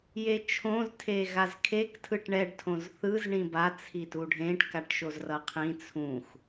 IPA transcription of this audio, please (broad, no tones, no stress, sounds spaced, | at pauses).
j e t͡ʃʰ õ z tʰ e ɣ a z kʰ e k tʰ ɯ ʈ ɳ ɛ ɖ tʰ õ z θ ɯ z ɳ ĩ b a t͡sʰ i t u ɖʱ ẽ ʈ k a ʈ ʃ o z r ʌ qʰ ĩ t͡sʰ ũ x